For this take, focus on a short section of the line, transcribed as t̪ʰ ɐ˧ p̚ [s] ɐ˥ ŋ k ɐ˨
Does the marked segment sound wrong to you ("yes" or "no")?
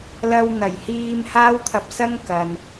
no